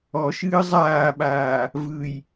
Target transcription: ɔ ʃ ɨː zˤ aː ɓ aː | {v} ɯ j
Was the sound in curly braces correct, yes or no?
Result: yes